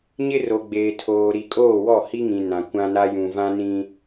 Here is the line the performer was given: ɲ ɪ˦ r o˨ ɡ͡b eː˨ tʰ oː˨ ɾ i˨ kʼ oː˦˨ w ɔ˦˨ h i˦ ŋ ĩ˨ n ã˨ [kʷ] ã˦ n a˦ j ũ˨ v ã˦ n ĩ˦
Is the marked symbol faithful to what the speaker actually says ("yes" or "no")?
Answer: yes